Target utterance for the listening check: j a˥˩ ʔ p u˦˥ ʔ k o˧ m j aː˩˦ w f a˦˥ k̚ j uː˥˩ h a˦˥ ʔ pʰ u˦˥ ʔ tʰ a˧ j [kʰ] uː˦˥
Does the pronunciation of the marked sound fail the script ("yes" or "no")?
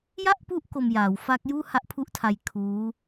no